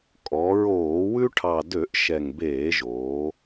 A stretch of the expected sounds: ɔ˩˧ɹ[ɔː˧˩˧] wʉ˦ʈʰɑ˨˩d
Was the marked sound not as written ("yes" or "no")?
yes